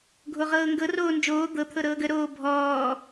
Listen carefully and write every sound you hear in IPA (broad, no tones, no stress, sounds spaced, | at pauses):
ɡʱ o ʁ ɤː ŋ ɡ ɤ r oː n d͡ʒ oː d̪ ɤ t̪ʰ ɤ ɾ ɤː ɡ ə ɾ oː bʱ ɔː